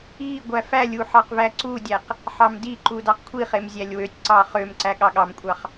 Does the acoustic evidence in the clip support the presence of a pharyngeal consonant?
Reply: yes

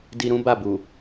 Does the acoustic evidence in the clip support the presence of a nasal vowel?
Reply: yes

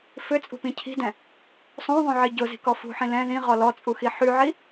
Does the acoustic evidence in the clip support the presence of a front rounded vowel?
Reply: yes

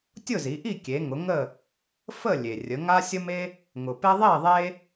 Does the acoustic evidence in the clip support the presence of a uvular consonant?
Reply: no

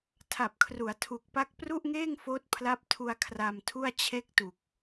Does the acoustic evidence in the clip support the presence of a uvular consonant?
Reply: no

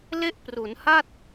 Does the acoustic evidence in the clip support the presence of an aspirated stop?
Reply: no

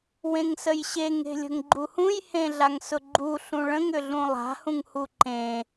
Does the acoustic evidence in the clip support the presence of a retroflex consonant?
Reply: yes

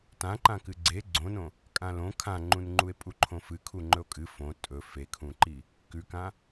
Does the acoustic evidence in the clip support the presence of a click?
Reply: yes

